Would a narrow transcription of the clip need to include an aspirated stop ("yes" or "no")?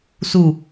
no